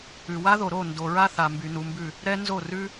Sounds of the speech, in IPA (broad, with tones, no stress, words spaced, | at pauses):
ʉ˨wa˦ðo˨ɾo˦˨ ndo˨ɹa˦ θa˨mby˨nu˨mbʉ˦˨ | ɾɛ˦nzo˦˨ rʉ˦